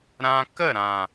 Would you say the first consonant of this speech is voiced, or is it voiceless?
voiced